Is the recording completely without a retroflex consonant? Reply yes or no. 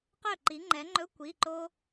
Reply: yes